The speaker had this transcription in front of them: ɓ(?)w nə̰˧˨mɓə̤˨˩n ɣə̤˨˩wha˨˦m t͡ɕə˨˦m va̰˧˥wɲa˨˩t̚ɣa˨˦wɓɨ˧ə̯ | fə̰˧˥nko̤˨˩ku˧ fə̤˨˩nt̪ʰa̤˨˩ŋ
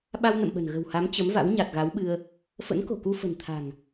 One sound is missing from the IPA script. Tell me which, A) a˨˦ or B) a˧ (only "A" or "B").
B